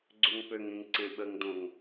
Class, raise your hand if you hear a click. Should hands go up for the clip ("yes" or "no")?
yes